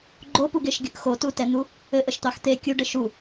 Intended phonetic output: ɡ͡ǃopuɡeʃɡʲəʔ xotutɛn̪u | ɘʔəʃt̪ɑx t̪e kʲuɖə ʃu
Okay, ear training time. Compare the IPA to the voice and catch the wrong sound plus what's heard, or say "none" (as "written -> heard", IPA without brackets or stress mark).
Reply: none